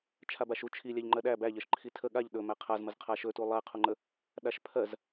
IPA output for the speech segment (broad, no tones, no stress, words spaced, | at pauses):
t͡ʃʰabaʃu t͡ʃʰi lʲæʎŋ͡ǃɜɗæ bæʎɜʃ ǃʰitʰə ɠaʎ ɗɵmæ qʰazməz qʰaʃɵtu lˠæqʰuŋ͡ǃə | ɗaʃpʰɜz